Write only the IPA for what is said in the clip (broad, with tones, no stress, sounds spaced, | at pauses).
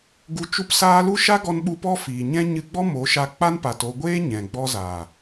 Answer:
ɡ u˧ t͡ʃ u˦ p s aː˦ l u˦ ʃ a˦ ɡ ɔ˧ n ɓ u˧ p ɔ˦ f iː˨ ɲ ɛ̃˦ ɲ ɨ˧ ɡ͡b ɔ˦ m o˨˦ ʃ a˧ k͡p a˦ n p a˨ t o˧ ɡʷ eː˦ ɲ ɛ̃˨ ɡ͡b ɔ˧ z a˨